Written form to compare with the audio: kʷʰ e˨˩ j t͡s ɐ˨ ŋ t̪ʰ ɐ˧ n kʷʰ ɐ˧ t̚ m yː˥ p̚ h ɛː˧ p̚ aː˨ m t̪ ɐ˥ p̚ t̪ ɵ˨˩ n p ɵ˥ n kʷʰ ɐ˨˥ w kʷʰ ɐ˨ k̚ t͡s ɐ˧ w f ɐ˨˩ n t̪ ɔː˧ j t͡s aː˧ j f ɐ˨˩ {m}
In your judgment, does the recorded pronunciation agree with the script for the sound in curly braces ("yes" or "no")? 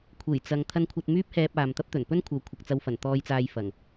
no